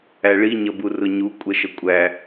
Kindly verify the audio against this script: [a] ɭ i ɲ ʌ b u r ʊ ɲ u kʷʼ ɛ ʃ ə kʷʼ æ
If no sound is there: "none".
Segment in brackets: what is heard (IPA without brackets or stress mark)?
æ